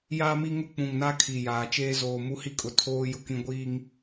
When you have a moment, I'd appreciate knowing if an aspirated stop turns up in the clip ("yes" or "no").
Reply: yes